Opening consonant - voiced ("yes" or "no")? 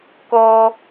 no